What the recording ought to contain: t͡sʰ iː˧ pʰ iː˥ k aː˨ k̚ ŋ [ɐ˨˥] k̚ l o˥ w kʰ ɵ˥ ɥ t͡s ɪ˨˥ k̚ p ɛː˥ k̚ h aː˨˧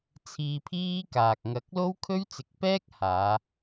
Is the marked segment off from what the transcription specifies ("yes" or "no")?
no